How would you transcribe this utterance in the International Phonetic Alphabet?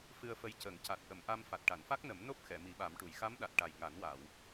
f ɨ˧ ə̯ f ə˧ j c ə˨˩˦ ŋ c a˨˩ t̚ ʔ ə˨˩˨ m ʔ a˧ m f a˨˩ t̚ ʈ a˨˩˨ n f a˦˥ k̚ n ə˨˩˦ m n o˦˥ p̚ x ɛ˨˩˨ m i˨˩˦ ɓ a˨˩˦ m ʈ u˨˩˨ j x a˧˥ m ɗ a˨˩ t̚ ʈ a˨˩ j ŋ a˨˩˦ n w a˨˩˨ w

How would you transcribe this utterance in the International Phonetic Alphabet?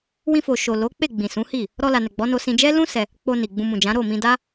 w ĩ˧ f o˨ ʃ o˨ l o˨˦ k͡p e˦˨ ɡ͡b ĩ˨ s ũ˨˦ h i˦˨ | ɾ ɔ˧ l a˨ n ɛ˨ ɡ͡b ɔ˨˦ n o˧ s ĩ˧ d͡ʒ ɛ˦ l ũ˦ s ɛ˧ | k͡p o˧ n i˨ ɡ͡b ũ˧ m ũ˨ d͡ʒ ã˨˦ ɾ o˦˨ m ĩ˧ d a˦

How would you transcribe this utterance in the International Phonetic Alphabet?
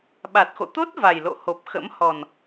ɓ a˨˩ t̚ x o̰˧˨ t̪ o˦˥ t̚ v a˨˩ j l o̰˧˨ h o˨˩ p̚ x ə̰˧˥ m h ɔ˨˩ n

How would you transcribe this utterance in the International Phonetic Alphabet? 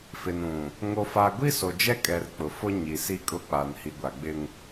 f ɪ˨ n ũ˨ | ŋ o˨ f a˨ ɡʷ i˦ s o˨ d͡ʒ ɛ˦ kʼ ɛ˨ r k͡p ʊ˨ f ʊ˦ ɲ i˨ s i˦ kʼ ʊ˦ k͡p a˨ n h i˨ ɡʷ a˨ ɡ͡b ɪ˦ ŋ

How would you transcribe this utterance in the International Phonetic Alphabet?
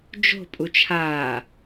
d͡ʒ o̤ pʼ u t͡ʃʰ aː

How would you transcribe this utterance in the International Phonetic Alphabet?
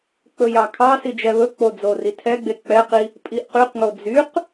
k͡p ɵ j ɑ kʰ ɑ s i d͡ʒ ɛ β ɵ k͡p o d͡z o r i tʰ ɛ ɡ͡b e k͡p ɛ q i | pʼ i ʔ q y q ŋ o d͡z y q

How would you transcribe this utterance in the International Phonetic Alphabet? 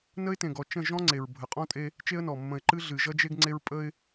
n ə˦ ɪ̯ t ẽ˨ ɡ ɔ˨ t͡ʃ ə̃˦˨ ʒ ɔ̃˦ ŋ͡ǀ e˨ ɹ bʱ ə˨ qʼ ɔ̃˦ tʼ e˦ | t͡ʃ e˦ ə̯ n ɔ˨ mː ə̃˨ ɪ̯ ǃ ɨ˦ ɮ ɨ˨ ʒ ʌ˦ d͡ʒ e˦ ɡ ŋ͡ǀ e˦ ɹ pʼ ə˦ ɪ̯

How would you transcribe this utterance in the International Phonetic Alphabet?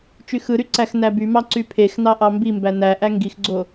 t͡ʃ y x ɯ ɾ y ǀ æ x n æ b y m ɑ ǀ y pʰ e x n ɑ ʔ ɑ m b i m b æ n æ ʔ æ ŋ ɡ i x ɡ͡ǀ o

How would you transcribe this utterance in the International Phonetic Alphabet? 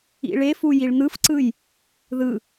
ḭ ɭ e f u j i ɭ n̪ ɯ f ǀ ɯ j | ð ɯ

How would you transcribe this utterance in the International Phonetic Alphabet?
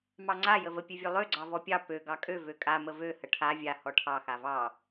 m ɑ ŋ͡ǀ a j ə v ə pʲ ø vʲ ø lˠ ø ɡ͡ǀ ɑ v ɔ pʲ ɑ p ø ɡ ɑ kʼ ø v ø kʼ a m ə v ø h ə ʈʰ a vʲ a h ɔ ʈʰ ɑ x a v ɑ

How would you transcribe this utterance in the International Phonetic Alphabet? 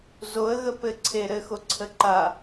z o ə̯ ɣ ə p ɘ ǀʰ e ɾ ɘ x o ǀʰ ə ǃ a

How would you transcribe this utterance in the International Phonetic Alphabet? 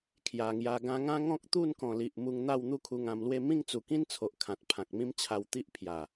kʰ j a˨˩ ŋ j a˧ ɡ ã˧ ŋ ã˦ ŋ ɔ̃˦ k̚ t̪ u˥˧ n k ɔ̃˨˩ l i˨ ʔ m u˧ ŋ n̪ a˥˧ w n̪ u˥˧ kʰ u˧ ŋ ã˧ m l w e˥˧ m ĩ˥˧ ŋ t͡s u˨˩ k ĩ˦ n t͡sʰ o˨ ʔ kʰ ã˨ t̚ pʰ ã˨ k̚ m ĩ˦ m t͡ɕʰ a˧ w t̪ i˦ ʔ pʰ j a˨˩

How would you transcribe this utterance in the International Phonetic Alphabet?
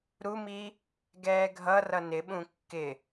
ɾ u m i | ɡ ɛː ɡʱ ʌ r ʌ n ɪ ɓ ũ kː ɪ

